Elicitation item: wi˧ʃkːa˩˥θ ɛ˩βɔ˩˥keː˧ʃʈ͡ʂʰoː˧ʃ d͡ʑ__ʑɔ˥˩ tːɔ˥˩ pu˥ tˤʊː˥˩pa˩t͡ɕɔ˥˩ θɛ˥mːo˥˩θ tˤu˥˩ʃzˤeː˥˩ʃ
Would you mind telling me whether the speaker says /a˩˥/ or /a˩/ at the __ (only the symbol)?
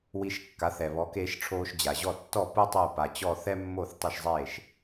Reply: a˩